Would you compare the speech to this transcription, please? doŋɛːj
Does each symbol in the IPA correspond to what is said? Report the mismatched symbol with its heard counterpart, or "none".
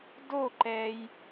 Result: ŋ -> ǃ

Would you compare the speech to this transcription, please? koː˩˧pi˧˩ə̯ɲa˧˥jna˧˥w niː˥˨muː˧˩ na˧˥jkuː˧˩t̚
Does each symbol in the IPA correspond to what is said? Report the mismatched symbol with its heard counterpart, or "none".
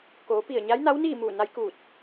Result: none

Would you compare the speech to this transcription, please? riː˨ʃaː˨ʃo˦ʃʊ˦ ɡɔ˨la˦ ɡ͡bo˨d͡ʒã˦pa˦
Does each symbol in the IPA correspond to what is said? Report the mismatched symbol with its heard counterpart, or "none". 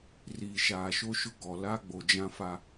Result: p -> f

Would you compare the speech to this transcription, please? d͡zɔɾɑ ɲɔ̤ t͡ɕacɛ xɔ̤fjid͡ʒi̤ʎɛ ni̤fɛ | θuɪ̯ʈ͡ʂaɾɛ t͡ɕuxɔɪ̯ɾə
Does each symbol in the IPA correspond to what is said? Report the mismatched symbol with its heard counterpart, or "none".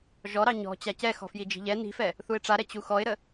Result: d͡z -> ʒ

